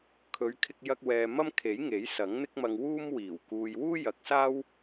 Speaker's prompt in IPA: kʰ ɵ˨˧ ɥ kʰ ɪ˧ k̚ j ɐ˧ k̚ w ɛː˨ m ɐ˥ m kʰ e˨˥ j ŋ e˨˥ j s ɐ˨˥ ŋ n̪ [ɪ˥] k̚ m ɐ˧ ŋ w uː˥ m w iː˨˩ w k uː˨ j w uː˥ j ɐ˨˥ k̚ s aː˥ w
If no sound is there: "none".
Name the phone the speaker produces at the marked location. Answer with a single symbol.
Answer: ɪ˥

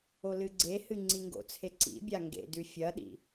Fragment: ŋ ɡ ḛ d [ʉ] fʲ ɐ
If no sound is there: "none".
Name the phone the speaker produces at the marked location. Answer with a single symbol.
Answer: ʉ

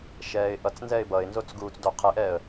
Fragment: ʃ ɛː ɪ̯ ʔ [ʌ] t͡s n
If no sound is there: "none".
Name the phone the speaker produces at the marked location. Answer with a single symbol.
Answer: ʌ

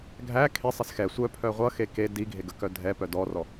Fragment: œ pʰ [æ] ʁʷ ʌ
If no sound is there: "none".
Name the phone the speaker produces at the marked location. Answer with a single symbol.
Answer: œ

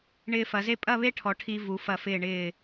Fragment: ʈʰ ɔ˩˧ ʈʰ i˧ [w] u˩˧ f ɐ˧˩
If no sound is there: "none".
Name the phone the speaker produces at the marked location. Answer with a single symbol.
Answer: v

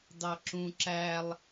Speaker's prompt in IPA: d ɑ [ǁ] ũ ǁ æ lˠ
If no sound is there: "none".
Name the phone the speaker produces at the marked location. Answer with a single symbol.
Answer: ǁ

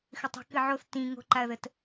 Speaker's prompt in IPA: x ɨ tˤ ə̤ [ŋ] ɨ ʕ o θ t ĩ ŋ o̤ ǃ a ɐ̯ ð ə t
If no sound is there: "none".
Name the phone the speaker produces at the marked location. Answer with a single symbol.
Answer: k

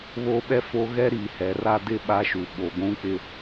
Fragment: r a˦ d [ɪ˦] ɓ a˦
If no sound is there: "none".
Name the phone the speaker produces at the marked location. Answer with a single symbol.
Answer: ɪ˦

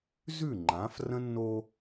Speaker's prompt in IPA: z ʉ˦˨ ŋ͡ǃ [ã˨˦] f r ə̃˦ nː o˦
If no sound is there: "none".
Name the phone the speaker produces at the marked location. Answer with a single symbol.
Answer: ã˨˦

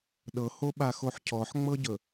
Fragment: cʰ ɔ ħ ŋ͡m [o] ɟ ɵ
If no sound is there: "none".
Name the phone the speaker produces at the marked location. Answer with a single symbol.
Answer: ɤ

